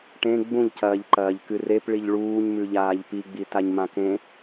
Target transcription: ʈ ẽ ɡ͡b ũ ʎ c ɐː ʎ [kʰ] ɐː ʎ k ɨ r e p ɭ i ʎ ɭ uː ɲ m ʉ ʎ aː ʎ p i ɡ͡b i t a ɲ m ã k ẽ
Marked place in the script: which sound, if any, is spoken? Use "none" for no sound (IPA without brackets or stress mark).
ǃ